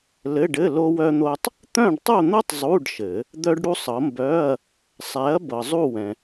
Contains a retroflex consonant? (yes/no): yes